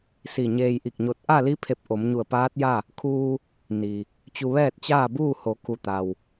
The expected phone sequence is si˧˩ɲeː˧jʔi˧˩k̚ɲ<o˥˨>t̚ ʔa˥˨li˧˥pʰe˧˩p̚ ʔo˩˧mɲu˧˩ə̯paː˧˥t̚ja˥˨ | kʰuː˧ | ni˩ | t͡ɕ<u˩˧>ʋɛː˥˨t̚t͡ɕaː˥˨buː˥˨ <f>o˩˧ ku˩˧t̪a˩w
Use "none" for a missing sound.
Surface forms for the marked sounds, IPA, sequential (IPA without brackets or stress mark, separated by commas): o˧, u˧, h